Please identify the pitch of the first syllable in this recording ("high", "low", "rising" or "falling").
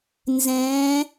rising